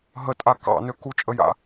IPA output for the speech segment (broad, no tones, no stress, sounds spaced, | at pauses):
ɦ ə tʼ a k ɑ̰ n ø k u t͡ʃʼ ə j a̰